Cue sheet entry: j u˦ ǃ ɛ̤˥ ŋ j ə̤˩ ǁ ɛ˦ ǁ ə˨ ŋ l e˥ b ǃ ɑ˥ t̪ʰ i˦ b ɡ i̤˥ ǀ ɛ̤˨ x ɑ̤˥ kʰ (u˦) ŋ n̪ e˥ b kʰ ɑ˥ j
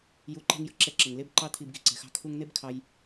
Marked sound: correct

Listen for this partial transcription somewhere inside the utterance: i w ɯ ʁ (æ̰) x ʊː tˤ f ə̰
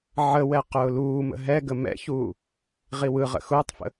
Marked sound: incorrect: ə̰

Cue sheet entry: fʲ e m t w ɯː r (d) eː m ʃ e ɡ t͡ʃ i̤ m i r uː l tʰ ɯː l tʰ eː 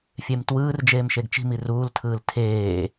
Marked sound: incorrect: d͡ʒ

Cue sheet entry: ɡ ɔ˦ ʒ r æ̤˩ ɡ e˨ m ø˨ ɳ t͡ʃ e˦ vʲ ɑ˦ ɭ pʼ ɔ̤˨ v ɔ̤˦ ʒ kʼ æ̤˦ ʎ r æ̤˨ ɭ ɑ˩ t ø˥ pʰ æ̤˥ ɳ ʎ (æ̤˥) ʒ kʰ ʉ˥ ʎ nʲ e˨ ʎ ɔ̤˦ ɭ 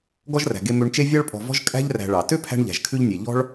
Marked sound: incorrect: æ̤˨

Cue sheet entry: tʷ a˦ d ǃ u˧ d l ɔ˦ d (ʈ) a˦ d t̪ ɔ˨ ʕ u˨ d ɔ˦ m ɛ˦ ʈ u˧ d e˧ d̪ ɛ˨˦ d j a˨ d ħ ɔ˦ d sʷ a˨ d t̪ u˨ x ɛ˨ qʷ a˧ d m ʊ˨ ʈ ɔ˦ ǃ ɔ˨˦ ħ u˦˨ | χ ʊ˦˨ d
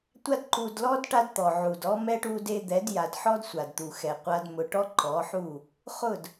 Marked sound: correct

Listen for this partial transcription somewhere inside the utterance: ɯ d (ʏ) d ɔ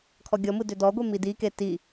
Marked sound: correct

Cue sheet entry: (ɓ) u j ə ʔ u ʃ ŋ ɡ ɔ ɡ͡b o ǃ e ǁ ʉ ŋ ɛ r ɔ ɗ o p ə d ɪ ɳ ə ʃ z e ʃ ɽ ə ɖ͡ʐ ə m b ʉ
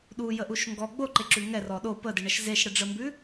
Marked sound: incorrect: ɗ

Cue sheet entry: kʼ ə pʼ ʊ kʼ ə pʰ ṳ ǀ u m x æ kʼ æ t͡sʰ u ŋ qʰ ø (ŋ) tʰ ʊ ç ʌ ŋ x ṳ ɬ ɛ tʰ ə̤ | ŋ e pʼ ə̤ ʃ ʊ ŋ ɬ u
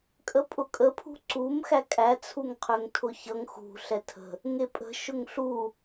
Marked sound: correct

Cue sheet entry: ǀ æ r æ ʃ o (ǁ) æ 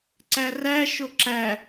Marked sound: correct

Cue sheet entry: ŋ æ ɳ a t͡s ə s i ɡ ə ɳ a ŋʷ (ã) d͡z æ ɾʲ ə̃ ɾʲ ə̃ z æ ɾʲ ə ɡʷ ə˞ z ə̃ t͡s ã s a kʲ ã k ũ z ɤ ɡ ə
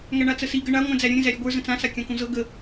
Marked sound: incorrect: æ̃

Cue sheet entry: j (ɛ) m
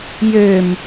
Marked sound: incorrect: ø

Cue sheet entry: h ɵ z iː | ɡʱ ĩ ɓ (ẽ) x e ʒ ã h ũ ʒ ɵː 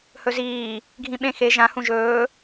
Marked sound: correct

